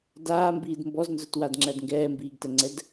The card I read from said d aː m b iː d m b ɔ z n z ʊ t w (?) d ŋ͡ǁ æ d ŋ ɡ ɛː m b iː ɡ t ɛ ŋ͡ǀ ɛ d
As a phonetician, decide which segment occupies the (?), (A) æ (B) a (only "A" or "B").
B